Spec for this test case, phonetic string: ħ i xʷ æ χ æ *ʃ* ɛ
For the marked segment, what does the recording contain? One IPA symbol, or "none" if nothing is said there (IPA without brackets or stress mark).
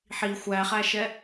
ʃ